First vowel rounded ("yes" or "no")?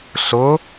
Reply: yes